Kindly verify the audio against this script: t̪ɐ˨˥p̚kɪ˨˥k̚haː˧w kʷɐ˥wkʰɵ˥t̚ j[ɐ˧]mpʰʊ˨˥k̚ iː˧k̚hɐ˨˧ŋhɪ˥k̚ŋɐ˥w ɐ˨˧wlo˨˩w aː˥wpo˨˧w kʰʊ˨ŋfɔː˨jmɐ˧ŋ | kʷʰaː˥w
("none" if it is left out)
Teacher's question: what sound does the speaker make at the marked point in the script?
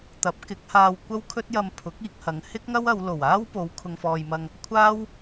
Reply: ɐ˧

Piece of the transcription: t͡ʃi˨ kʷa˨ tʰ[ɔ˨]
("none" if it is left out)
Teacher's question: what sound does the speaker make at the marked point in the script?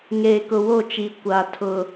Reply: ʊ˨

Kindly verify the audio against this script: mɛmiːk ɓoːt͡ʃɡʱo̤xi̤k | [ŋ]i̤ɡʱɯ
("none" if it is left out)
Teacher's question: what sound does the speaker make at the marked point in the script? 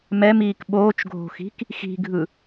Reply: x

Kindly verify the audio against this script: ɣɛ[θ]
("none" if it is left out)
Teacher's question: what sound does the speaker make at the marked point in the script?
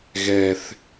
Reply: θ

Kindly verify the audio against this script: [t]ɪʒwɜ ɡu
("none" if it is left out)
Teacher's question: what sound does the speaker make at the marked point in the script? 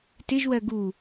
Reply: t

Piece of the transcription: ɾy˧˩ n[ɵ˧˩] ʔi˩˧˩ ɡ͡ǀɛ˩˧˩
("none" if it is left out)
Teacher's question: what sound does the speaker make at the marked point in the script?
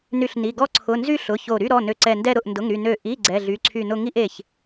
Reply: ø˧˩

